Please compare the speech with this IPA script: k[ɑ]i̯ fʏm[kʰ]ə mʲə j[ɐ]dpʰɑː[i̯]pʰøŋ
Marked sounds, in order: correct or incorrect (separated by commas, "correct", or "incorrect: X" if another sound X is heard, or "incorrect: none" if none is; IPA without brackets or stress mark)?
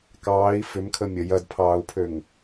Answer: incorrect: ɑː, correct, correct, incorrect: u̯